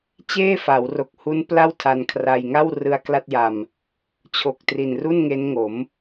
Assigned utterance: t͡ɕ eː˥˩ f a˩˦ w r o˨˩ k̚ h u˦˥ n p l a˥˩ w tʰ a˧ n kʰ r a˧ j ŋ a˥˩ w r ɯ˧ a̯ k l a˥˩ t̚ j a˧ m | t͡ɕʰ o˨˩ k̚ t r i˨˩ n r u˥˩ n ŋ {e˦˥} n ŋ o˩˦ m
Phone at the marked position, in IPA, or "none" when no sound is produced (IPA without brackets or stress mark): e˦˥